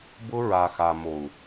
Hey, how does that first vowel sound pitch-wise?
high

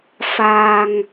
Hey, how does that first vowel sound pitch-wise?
low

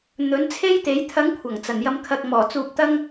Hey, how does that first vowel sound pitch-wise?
rising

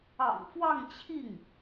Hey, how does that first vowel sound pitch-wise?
low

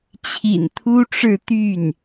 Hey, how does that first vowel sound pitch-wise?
low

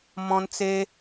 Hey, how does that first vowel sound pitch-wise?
high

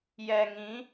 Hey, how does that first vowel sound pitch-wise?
low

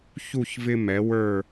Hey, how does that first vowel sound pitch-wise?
falling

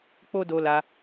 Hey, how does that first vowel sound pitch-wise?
high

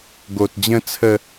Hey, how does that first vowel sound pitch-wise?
low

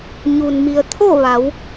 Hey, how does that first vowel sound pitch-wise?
low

